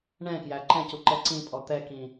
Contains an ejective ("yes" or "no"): yes